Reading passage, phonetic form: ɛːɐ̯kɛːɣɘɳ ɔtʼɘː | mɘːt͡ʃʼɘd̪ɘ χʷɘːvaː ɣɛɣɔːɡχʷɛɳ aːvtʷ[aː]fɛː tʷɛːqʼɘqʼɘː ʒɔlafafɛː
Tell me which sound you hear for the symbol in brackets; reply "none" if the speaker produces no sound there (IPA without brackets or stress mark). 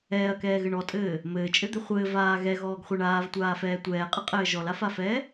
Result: aː